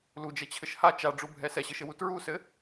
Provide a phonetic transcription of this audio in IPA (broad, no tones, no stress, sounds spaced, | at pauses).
l u d͡ʒ ɛ t͡ɕʰ ɘ ʃ h a t͡ʃ a ɖ͡ʐ u bʱ ɛ s ɛ ɕ ɘ ʃ ɘ w u t ɹ u s ɘ